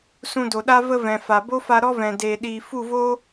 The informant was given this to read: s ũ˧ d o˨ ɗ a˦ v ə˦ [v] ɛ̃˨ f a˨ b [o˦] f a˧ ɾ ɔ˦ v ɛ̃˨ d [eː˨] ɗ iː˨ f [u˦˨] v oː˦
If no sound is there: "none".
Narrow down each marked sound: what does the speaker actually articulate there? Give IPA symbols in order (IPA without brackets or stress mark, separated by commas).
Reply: v, o˦, eː˨, u˦˨